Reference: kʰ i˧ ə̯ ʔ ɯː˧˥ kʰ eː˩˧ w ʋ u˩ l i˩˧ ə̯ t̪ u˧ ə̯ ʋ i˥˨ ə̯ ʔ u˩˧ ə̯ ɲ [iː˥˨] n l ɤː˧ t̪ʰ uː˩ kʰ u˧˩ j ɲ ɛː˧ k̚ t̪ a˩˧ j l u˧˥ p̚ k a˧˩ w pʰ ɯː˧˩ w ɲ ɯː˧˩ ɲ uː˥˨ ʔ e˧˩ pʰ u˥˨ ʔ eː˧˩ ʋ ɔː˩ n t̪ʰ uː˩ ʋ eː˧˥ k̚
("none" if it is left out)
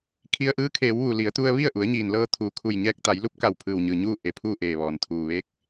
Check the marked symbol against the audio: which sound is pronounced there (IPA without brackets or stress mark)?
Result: iː˩